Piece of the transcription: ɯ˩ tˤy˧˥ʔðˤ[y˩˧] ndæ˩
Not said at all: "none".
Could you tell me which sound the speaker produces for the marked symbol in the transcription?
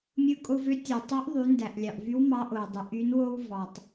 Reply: y˩˧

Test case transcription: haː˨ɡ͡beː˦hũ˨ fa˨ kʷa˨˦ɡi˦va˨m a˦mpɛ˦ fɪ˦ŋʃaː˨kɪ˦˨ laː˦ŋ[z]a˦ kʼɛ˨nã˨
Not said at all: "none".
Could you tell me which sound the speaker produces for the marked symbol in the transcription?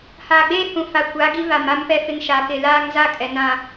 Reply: z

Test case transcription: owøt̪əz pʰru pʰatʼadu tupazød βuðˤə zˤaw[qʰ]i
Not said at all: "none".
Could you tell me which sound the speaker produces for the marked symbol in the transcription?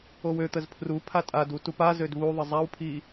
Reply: pʰ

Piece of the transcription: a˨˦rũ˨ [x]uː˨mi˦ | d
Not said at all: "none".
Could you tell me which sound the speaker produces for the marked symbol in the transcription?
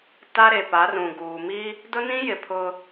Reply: ɡ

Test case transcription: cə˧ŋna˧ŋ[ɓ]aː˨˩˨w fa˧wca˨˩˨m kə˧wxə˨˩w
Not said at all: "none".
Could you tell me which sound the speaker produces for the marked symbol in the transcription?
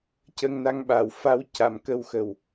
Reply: ɓ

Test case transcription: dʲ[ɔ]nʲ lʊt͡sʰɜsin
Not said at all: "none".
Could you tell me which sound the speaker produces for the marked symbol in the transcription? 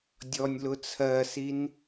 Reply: ɔ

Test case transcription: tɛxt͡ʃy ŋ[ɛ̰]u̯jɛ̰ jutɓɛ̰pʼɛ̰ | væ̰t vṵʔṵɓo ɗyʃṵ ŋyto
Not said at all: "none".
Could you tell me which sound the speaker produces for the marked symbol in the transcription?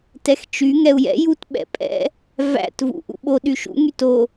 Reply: ɛ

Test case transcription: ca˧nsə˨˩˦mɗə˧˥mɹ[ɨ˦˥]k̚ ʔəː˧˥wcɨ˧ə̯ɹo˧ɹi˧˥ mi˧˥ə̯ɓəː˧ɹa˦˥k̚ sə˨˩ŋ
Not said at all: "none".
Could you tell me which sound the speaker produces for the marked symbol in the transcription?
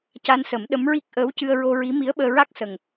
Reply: i˦˥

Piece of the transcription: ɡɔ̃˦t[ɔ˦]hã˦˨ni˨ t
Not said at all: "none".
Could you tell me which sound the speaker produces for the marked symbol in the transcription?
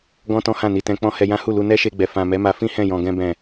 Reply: ɔ̃˦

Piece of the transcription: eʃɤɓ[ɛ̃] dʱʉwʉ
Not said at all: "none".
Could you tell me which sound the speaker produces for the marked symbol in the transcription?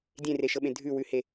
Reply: ẽ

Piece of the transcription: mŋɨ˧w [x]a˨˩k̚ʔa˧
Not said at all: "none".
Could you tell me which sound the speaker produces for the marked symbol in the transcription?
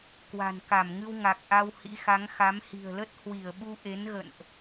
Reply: ŋ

